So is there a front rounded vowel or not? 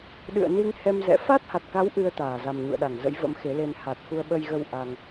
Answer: no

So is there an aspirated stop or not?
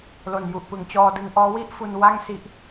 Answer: no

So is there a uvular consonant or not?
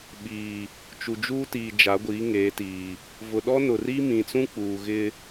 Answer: no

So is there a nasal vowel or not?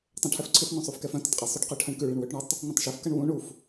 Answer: yes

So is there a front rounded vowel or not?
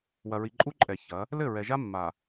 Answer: no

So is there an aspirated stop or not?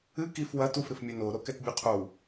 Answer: yes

